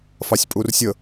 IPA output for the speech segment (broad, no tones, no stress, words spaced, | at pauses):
fɑsʲpʼursʲə